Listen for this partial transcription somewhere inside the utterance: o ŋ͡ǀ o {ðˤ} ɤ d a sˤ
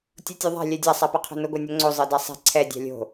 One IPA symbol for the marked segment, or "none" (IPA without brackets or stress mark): zˤ